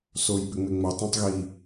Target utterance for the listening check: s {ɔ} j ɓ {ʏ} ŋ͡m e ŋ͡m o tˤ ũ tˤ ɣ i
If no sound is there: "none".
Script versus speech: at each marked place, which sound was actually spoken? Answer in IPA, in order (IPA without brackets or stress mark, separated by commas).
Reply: o, ʏ